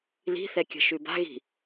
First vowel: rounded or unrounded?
unrounded